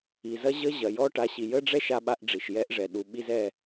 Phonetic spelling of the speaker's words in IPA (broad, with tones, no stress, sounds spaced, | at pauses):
i˨ z ɐ˦ ʑ ə˦ ʑ ɐ˨ j ɔ˦ ʈ a˨˦ ɕ i˨ j ə˦ ɖ͡ʐ ɛ˦ ʃ a˦ ɓ a˦ ʔ ɖ͡ʐ i˨ ʃ j ɛ˦ ʔ ʐ ɛ˨ ɗ u˨ ɓ i˦ z ɛ˦˨